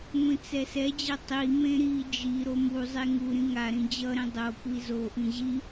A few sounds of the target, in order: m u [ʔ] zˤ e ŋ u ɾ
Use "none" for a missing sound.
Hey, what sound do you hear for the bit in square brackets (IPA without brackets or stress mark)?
none